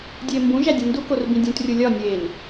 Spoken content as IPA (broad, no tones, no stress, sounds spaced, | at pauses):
dʲ eː m b ũ ʒ æ dʲ ẽ n d u k o r b ĩ dʲ ũ t rʲ u lʲ ɒ nʲ eː n